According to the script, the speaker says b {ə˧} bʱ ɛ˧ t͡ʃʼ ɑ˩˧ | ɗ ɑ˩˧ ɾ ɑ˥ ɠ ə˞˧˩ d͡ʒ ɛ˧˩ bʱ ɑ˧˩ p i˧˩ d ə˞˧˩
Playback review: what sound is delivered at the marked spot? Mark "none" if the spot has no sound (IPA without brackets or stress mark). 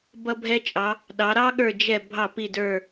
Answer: ʌ˧